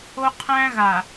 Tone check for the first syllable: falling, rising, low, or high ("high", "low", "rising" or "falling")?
high